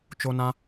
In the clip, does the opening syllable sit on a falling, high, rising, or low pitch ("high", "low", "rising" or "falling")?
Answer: high